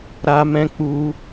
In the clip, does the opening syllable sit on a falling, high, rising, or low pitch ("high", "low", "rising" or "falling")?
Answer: high